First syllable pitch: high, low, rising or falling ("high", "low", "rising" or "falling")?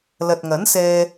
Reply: low